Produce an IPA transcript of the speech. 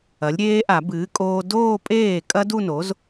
ɐ˩˥lʲɾʲeː˦˥ʔa˨˩˦ bɨː˩˥kʼoː˧ doː˥˧pʼeː˥˩ kʼɐ˦˥du˥˧no˩˥z

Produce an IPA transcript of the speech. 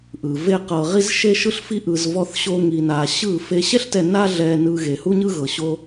ʔɯ˨ ve˦qɤ˧ʁi˦z ʃe˦ʃɯ˦ɬfi˦ʔɯ˧z vɔ˦θɕo˦ŋi˧na˧ ɕɯ˦˨ fe˧ɕɛ˦ɬtɛ˧ na˦ɮɛ˧ nɯ˧ɣe˨hu˦ɲɯ˦ ɣɤ˨ɕo˧

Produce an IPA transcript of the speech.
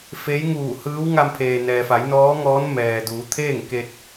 fe˧˥jŋuː˧˩hɯː˧˥w ŋa˧mpʰeː˩nɛː˩fa˩˧j nɔː˧˥ŋɔː˧˥n mɛː˩duː˩˧t̪ʰeː˥˨ŋ ke˧t̚

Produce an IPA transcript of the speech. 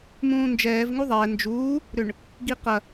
mũːnd͡ʒɛːv ŋuðˤɛː nd͡ʒuː | ɾʏɳ | ɡiqɐ

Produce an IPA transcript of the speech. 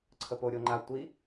ǀʰəpo ɾʲoŋ͡ǃa tʷi

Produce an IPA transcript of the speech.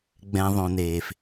ɡ͡bɛ̃˩ ðˤõ˩neː˩f

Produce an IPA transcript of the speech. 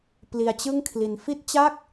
pli˧a̯t͡ɕɯ˥˩ŋkʰli˧n fi˥˩t̚t͡ɕa˥˩k̚

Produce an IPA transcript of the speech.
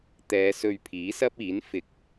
t̪ɛː˨˧ sɵ˧ɥpʰiː˨˥sɐ˥p̚iː˨˥n fɪ˨˥k̚

